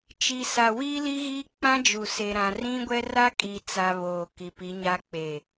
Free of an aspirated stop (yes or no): yes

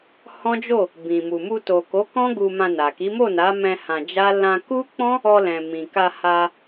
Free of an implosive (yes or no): yes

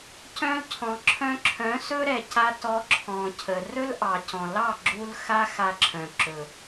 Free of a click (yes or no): no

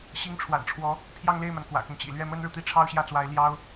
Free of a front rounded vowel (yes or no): yes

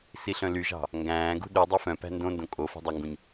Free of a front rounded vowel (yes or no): no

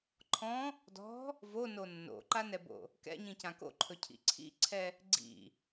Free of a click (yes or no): no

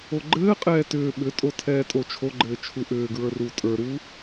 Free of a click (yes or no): no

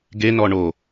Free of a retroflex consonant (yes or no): no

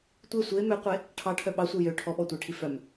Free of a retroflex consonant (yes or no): no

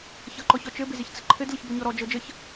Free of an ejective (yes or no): yes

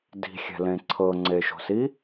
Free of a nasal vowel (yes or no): no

